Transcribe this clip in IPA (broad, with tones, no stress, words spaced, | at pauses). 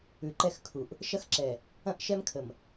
ʉ˨ǃɛ˦˨xkʰu˨ʔ | ʃɐ˦xǁɛ˨ | ɐ̃˦ʔ ʃɛ˦mkʰə˨m